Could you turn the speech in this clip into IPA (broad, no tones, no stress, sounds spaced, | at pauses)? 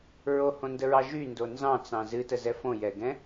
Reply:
ɹ o h õ n d ə ɹ ɑ ʒ y n d o n z ɑ̃ t͡s ɑ̃ z ɨ t ə z ɛ f õ j ɛ ɡ ɛ̃